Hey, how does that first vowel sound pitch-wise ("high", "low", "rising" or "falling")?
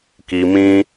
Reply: low